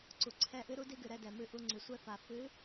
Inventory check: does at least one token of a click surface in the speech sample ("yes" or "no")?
yes